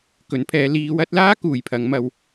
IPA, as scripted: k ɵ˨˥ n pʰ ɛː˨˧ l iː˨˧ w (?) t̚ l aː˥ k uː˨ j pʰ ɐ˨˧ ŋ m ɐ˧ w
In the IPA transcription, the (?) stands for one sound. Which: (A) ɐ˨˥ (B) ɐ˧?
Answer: A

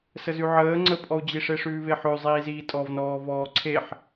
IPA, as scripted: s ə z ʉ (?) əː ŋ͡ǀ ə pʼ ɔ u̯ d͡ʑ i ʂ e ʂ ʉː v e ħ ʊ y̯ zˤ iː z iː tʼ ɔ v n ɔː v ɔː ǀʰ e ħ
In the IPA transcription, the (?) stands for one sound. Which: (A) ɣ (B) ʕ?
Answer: B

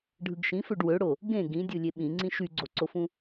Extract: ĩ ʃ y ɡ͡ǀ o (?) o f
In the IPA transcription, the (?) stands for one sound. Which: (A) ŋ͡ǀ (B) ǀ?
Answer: B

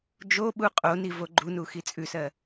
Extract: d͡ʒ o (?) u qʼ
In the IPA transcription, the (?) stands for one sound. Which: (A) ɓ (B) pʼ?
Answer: A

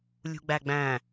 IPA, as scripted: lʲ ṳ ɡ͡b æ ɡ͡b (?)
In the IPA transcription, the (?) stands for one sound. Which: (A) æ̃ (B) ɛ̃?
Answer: A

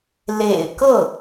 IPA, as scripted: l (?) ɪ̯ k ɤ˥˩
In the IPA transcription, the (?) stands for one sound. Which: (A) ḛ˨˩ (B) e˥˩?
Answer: A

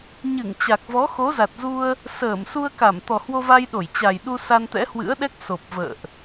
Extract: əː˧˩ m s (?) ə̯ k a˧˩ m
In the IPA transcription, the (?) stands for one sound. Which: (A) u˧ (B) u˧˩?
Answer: A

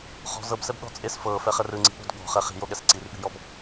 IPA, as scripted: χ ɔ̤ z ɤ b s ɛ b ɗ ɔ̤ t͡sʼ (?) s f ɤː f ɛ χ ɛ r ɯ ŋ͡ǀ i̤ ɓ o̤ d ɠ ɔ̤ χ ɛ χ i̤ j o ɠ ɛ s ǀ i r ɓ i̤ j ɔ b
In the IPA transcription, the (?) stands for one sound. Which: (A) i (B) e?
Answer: B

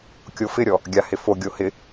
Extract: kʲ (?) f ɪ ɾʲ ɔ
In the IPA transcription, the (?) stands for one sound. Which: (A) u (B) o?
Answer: B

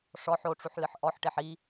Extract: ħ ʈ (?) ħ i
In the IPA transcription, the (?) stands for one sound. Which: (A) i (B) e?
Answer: B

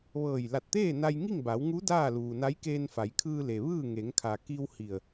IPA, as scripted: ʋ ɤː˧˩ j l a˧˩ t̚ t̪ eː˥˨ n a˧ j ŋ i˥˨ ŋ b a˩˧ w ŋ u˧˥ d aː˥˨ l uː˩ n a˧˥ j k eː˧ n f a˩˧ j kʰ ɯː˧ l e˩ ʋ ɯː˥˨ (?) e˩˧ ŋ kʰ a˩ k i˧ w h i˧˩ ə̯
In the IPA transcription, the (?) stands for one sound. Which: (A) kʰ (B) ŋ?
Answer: B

